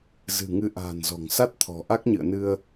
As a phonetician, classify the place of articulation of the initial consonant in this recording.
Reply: alveolar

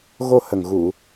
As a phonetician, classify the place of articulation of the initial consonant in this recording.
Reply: velar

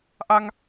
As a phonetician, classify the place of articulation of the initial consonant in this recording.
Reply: glottal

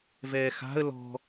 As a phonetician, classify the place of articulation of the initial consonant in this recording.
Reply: labial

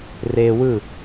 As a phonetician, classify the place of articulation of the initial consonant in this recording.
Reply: alveolar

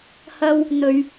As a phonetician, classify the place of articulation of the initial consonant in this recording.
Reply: glottal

